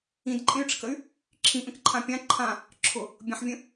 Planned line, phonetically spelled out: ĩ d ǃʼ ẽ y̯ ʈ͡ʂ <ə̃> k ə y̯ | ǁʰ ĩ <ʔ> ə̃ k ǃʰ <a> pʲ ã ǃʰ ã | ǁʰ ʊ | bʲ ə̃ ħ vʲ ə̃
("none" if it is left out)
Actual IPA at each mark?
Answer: ə, ʔ, ã

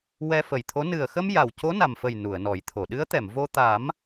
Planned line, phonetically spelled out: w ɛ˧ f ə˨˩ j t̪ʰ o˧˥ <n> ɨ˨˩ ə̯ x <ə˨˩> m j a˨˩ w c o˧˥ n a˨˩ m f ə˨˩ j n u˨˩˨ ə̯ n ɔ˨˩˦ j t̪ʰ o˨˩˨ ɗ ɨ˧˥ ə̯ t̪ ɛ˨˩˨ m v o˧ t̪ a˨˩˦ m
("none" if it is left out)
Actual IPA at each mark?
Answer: n, ə˧

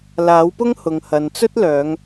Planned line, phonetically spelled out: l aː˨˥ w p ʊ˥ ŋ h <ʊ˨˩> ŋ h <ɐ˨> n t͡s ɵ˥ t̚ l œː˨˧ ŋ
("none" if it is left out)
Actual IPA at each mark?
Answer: ʊ˨, ɐ˨

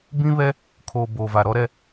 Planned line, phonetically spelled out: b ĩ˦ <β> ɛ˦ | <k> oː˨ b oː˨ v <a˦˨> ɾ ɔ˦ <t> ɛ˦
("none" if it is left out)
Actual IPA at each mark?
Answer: β, kʰ, a˨, ɾ

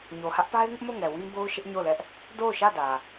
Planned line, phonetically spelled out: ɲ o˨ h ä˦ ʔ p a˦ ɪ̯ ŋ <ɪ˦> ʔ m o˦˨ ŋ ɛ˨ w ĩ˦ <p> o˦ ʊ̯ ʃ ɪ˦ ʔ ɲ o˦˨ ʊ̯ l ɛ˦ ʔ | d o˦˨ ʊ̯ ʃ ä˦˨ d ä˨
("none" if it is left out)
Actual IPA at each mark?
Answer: ɪ˦, b

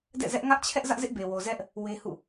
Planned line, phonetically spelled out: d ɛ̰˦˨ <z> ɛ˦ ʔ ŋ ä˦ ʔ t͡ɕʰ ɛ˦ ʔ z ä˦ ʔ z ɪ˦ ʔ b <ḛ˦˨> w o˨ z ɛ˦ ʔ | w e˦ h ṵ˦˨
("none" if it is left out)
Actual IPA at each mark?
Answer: z, e˨

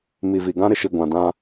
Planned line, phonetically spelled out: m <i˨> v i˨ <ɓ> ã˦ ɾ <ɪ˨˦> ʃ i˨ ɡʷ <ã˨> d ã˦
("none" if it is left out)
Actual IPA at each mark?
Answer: i˨, ɡ, ɪ˨, ã˨

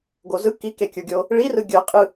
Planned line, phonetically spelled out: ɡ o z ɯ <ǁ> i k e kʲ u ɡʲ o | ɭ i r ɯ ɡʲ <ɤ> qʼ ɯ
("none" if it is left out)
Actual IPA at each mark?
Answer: k, ɤ

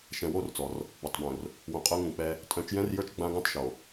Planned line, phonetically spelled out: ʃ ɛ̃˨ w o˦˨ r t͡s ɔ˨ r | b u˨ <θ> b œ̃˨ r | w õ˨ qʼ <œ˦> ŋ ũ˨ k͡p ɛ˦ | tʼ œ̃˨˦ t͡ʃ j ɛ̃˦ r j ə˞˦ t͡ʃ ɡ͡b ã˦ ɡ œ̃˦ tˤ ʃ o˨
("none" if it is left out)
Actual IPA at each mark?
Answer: tˤ, œ˦

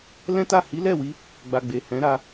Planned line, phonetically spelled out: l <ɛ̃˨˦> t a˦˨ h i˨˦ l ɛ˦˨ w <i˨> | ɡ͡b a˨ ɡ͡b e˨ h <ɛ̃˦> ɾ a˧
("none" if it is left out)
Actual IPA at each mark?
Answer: ɛ̃˦, i˧, ɛ̃˨˦

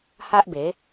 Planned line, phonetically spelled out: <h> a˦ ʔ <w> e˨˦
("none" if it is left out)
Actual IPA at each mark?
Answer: h, b

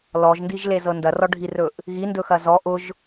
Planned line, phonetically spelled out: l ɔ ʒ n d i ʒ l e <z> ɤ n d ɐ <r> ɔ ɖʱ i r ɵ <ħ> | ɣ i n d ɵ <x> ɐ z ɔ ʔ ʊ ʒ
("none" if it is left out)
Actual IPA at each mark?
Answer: z, r, ʔ, x

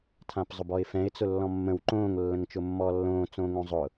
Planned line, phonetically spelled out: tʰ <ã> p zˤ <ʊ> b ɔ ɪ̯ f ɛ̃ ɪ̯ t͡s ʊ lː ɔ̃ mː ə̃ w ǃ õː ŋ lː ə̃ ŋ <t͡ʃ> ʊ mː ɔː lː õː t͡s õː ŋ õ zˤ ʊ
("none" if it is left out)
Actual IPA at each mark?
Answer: ã, ʊ, t͡ʃ

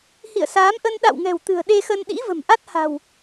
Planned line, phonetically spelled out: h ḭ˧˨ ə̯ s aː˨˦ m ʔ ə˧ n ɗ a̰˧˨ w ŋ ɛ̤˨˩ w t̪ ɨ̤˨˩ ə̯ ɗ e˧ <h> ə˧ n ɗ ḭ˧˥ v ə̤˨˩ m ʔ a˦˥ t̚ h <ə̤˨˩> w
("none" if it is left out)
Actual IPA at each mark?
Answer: x, a̤˨˩

